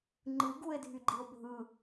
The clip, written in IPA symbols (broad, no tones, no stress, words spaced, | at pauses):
ŋ͡ǃɯɡue̯dʱyɡ͡ǃio̯ bʱɯ